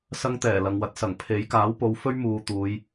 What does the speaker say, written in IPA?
s ɐ˥ ŋ t̪ ɛː˨˩ l ɐ˨ ŋ w ɐ˨˥ t̚ s ɐ˨˩ ŋ pʰ e˨˥ j k aː˨˥ w p o˨˧ w f ɵ˥ ɥ m uː˨ t̪ uː˨˧ j

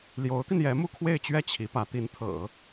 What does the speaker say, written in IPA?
l j o˧˥ ʊ̯ t̪ i˧ n j ɛ˧˥ m u˥˧ kʰ w e˥˧ ɪ̯ t͡ɕ ɥ ɛ˥˩ t͡ɕʰ i˧˥ p ä˧˥ t̪ i˧˥ n t̪ʰ ɤ̰˨˩˦

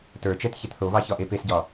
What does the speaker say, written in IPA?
t ə˞ t͡ʃ ɛ t ç ɛ t θ o β ɑ ç ɒ ʔ e p e s ɟ ɒ

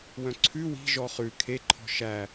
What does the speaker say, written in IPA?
w œ̃ ǀʰ ʉ w i̤ ʒ ɔ χ ʉ kʰ e ǃʰ ɔ̤ ʃ æ

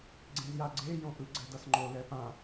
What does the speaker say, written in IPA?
ɡ͡ǀ ẽ z j a ɡ͡ǀ e j õ ʔ ɯ ɡ͡ǀ ɛ d ʌ s ŋ͡ǃ o l ɛ p ã

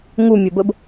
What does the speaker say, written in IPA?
ŋ u mʲ o b ə b

